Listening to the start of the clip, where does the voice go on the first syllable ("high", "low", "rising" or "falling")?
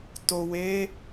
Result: low